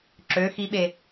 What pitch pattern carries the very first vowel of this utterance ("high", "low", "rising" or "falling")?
rising